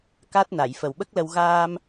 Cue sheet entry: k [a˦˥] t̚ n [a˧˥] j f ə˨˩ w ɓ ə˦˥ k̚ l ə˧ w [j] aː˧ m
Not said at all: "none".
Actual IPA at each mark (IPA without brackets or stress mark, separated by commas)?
a˦˥, a˨˩˨, ɣ